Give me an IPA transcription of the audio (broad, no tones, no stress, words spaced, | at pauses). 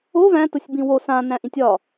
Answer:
o væ̃ tʊsʲbĩwo sã næ̃ʔĩtʲɒ